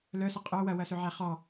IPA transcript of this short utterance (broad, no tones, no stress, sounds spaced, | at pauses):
l œ s ɐ qʼ œ w ɐ w ɐ s ɵ ʕ æ χ ɔ